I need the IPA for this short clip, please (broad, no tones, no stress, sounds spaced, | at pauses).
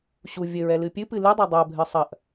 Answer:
ɕ u vʲ ɘ ɹ ɛ l ɨ pʲ ɨ p ɨ l ɨ dˤ a dˤ a bʱ ɨ sˤ ɐ ʔ